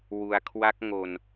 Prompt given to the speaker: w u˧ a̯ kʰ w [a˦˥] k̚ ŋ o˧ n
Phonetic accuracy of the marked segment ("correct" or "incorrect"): correct